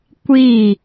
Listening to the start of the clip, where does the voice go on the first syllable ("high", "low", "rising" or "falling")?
falling